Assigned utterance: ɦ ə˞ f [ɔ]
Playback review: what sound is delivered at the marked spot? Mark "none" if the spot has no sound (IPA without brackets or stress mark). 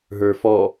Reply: ɔ